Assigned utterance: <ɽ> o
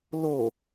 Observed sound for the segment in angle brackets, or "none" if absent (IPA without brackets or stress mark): l